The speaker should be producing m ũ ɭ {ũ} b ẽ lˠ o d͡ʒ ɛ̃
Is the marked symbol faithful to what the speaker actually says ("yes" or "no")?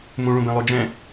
yes